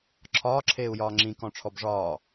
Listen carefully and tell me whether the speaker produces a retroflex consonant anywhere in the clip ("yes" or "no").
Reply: yes